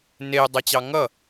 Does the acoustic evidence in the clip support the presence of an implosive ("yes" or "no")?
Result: no